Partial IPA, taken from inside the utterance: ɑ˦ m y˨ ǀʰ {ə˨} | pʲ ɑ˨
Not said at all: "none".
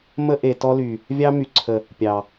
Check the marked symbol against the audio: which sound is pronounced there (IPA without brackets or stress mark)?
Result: ə˨